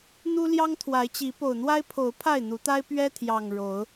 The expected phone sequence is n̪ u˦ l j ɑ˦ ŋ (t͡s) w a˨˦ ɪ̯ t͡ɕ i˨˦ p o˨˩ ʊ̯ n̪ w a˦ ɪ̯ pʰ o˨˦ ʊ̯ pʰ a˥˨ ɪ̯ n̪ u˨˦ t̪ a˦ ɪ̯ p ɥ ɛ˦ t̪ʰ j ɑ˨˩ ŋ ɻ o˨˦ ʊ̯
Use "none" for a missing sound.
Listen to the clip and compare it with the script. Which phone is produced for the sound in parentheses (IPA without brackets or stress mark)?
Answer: t̪ʰ